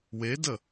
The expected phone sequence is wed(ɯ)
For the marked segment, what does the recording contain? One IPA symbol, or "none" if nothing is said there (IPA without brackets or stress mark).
ə